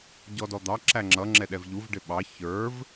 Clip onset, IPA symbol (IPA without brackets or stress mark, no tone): ɟ